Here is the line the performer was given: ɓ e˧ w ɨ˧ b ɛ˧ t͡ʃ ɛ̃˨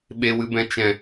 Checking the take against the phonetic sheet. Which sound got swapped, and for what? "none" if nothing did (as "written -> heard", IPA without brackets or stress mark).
ɛ˧ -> ɛ̃˧